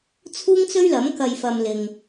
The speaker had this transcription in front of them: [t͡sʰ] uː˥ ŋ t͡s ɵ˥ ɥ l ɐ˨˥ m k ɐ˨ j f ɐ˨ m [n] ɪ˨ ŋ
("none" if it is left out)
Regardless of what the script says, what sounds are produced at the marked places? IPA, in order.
t͡sʰ, l

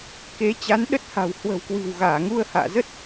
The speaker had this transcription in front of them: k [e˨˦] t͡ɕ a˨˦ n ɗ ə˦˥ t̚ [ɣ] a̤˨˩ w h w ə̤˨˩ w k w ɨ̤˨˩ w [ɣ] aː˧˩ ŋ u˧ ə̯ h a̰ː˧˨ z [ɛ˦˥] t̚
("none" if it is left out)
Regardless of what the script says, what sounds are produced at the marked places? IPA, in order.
e˨˦, h, ɣ, ə˦˥

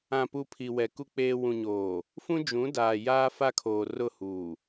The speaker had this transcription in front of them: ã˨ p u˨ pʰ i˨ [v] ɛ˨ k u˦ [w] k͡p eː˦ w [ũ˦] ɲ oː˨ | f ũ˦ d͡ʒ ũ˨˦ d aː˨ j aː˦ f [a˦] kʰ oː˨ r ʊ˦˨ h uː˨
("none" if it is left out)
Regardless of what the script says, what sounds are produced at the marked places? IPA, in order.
w, none, ũ˨, a˦

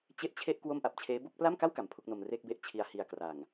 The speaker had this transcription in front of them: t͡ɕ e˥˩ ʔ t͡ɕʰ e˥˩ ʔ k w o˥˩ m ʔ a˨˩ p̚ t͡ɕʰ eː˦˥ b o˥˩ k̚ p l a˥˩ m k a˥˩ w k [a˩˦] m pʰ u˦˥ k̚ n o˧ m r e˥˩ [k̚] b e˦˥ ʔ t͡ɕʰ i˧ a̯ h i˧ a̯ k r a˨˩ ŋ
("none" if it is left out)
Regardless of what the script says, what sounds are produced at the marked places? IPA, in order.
a˩˦, k̚

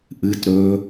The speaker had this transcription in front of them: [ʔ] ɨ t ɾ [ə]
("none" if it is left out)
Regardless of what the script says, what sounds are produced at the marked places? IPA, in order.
ʔ, ɵ

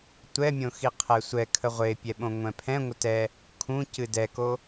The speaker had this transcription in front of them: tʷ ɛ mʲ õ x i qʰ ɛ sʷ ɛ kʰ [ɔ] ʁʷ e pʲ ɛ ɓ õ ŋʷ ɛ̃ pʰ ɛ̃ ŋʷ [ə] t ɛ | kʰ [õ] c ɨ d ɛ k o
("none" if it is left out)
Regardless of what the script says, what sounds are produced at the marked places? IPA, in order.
ə, ə, ũ

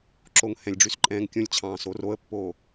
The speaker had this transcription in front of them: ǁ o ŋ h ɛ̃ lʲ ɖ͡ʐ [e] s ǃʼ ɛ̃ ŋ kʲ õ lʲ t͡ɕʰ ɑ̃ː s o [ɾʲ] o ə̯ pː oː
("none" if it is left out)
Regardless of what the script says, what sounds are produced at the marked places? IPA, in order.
y, r

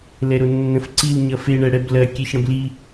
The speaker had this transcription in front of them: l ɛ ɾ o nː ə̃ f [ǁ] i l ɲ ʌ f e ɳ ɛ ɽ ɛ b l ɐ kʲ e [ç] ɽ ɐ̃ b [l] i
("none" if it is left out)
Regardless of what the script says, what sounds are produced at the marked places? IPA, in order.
ǀ, ç, l

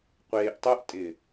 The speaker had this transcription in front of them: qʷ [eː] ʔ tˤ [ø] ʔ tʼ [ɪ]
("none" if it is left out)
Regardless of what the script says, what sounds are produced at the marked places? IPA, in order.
eː, u, ɪ

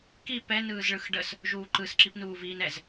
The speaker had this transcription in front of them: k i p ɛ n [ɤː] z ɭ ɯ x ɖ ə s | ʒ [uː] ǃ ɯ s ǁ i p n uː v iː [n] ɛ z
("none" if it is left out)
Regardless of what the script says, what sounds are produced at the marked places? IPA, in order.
ɯː, uː, n

